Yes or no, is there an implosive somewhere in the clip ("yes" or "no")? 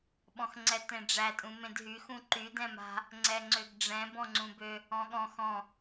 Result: yes